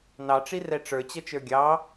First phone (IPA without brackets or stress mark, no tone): n